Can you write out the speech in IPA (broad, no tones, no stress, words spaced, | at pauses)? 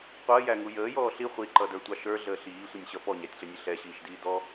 qʷəːjæŋu jəːjɔː ɬi χʷiǃʌdə˞tʷɑ ʃə˞ɮəː ɬiːsʷənʲɕʌ pɔɲætʲɬənʲə ɬɛɕiːʃdiː dɔ